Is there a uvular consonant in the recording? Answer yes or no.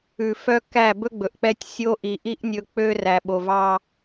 no